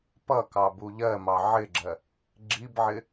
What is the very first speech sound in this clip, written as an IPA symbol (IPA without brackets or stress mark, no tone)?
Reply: p